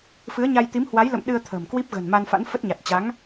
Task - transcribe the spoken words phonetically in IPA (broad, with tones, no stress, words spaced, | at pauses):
fɨ˨˦ə̯ɲa˧j t̪i˨˦mhwa˨˦jlə̰˧˨m ɗɨ˧ə̯ t̪ʰə̤ː˨˩mkwi˦˥p̚ ɣə̤˨˩n ma˧nfa̰˧˥nfə˦˥t̚ɲa˨˩t̚ t͡ɕa˨˦ŋ